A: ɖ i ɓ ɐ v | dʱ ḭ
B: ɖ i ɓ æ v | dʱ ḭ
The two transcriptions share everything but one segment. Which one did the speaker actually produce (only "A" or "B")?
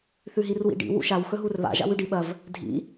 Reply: A